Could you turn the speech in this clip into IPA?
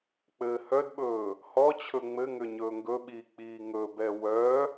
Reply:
k͡p ɘː h œ d ɓ ɵː | h ɔ t͡ɕʰ ɵ ŋ͡m ɘ ŋ ʏ ɲ ɵː ŋ ɡ ɵ ɓ iː k͡p iː ŋ ɵ b ɛ w œ

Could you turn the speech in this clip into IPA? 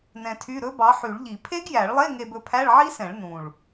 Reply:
n ɛ̃˧ tʰ y˧˥˧ ɾ ɵ˦˥ b ɑ˨˥ ħ y˨˩˦ ɭ ʎ i˨˩˦ pʰ e˦˥ ɡ j æ˨˩˦ ɭ lˠ e˧˥˧ ŋ e˧ b ɵ˧ pʰ æ˧˥˧ ɭ ʕ i˦˥ s ɛ̃˨˩˦ ɭ n ũ˨˩ ɭ

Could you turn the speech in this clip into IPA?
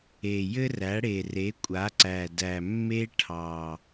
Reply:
e˨˩ j ɘ˥ r æ˩˥ ɽ e˨˩ r e˩˥ kʷʼ a˩˥ ǀ æ˨˩ d æ˨˩ mː e˥ ʈʰ ɑ˨˩

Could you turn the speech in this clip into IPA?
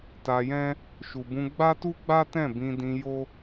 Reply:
t a˧ j ɛ̃˦ | ʃ u˨ b ũ˧ ɡ͡b a˦ t u˦ ɡ͡b a˦ t ɛ̃˦˨ b ĩ˧ d ĩ˧ j o˦

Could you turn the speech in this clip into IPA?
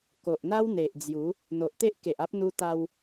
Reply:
k o˨ ʔ n̪ a˦ w n̪ e˨ ʔ d͡z j u˨˦ | n̪ o˨ ʔ t̪ e˦ ʔ k e˨ ʔ a˦ p̚ n̪ u˦ t̪ a˦ w

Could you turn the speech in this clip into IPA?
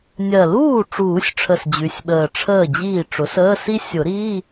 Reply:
nʲ ɜ˨˩ l uː˥˩ ʈ͡ʂ uː˨˩˦ sʲ ʈ͡ʂʰ ə˨˩ s d͡ʑ ʉ˩˥ sʲ ɓ əː˨˩ ʈ͡ʂʰ əː˥˩ d͡ʑ iː˥˩ ʈ͡ʂ ʊ˩˥ s əː˧˥˧ s i˥ sʲ ʊ˨˩˦ ɾ iː˧˥˧

